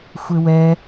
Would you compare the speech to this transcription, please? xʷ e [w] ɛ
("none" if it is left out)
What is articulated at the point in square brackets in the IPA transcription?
w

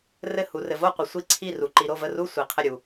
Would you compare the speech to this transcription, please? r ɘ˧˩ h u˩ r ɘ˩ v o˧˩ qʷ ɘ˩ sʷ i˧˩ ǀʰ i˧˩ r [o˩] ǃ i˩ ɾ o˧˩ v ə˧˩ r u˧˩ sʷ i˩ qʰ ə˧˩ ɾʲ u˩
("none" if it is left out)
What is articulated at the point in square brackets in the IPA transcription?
u˩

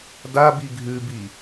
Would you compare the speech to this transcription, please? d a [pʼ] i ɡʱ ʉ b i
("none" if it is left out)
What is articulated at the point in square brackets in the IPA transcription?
b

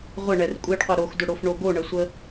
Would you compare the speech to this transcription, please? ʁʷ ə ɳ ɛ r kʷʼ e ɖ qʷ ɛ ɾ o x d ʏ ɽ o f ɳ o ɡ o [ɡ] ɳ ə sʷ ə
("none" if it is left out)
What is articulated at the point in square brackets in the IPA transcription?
none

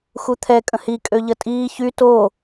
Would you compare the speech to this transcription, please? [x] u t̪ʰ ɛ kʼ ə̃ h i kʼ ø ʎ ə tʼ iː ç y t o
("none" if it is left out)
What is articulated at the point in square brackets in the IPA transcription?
x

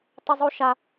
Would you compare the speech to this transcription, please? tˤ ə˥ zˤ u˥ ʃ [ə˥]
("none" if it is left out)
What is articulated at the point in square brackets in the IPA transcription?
a˥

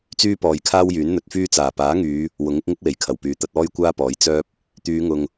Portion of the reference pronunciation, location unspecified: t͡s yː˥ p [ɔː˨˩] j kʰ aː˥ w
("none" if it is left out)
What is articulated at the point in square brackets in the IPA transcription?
ɔː˨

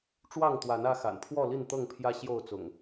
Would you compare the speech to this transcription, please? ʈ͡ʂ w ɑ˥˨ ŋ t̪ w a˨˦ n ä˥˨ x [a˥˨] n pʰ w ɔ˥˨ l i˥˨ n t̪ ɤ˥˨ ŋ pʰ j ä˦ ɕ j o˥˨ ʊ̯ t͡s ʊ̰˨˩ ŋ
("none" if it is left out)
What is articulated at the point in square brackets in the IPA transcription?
a̰˨˩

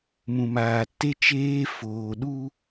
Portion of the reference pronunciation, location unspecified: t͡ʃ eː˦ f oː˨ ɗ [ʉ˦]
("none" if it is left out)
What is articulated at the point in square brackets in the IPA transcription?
u˦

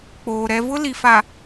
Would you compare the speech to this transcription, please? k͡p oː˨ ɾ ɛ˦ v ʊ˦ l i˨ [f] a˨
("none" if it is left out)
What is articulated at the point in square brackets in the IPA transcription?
f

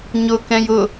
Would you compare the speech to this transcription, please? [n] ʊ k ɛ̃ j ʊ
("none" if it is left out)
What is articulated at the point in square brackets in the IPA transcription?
ɲ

